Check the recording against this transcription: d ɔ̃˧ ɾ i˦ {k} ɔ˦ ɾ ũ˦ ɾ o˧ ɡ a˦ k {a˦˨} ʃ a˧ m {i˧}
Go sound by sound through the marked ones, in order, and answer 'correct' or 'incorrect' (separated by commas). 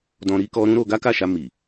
correct, correct, incorrect